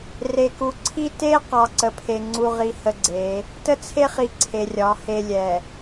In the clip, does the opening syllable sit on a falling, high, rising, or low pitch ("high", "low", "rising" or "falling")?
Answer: low